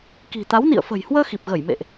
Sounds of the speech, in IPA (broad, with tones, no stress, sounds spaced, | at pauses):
k i̤˨˩ t̪ a˨˦ w n ḭ˧˨ ə̯ f ə̤˨˩ j h w əː˧ x i˨˩ p̚ ɣ ə˧˩ j m ḛ˧˨ ʔ